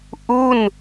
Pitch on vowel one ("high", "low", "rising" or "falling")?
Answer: falling